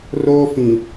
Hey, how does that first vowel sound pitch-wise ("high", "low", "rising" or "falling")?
high